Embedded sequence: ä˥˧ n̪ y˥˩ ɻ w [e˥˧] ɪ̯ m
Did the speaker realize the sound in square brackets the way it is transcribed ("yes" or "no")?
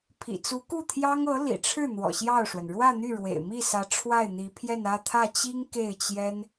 no